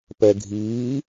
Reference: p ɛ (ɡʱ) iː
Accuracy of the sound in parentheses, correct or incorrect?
correct